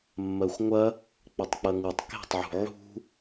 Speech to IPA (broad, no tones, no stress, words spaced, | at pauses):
mːɜxʷŋʷɐ | k͡pɐtˤk͡pɐŋutˤ ke̤tˤʕṳ ʕṳ